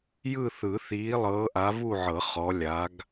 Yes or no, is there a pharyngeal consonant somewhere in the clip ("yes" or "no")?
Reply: yes